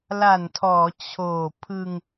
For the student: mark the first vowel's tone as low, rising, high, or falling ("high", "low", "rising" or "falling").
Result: low